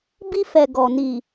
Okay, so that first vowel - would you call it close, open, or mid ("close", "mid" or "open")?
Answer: close